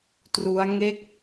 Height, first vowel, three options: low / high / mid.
high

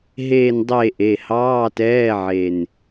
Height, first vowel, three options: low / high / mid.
mid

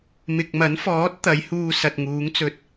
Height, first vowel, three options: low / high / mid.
high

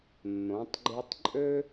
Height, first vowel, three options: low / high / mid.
mid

